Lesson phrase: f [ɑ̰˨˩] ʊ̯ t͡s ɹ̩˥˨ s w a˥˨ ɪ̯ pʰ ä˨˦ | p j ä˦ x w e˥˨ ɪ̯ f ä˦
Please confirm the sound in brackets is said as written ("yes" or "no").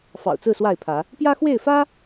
yes